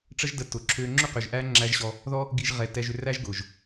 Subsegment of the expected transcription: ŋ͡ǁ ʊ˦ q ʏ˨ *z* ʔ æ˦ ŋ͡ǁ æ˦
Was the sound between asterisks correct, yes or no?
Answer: no